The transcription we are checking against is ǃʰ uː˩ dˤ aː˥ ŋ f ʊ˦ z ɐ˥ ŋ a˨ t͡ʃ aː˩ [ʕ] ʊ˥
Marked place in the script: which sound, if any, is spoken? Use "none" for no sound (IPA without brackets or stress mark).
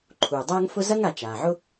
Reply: ʕ